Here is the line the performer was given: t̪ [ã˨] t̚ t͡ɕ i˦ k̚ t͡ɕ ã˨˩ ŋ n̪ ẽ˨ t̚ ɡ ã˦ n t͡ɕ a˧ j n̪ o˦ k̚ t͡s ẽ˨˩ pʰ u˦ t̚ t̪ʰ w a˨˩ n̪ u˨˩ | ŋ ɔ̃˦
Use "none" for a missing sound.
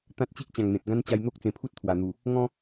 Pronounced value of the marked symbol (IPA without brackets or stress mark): ã˦